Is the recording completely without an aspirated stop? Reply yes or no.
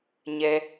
yes